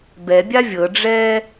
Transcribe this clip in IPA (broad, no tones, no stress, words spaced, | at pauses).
bɛbʲa vʲɤɖ͡ʐɛː